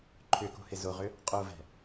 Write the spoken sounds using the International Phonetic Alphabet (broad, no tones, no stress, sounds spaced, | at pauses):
ǃʰ ʏ k o̤ h ɪ z o ʁ ʏ | qʼ o v ɛ̤